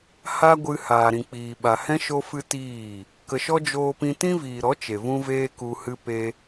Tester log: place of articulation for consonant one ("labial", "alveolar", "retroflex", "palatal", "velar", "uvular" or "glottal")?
glottal